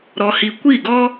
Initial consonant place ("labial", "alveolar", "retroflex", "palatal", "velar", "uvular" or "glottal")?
alveolar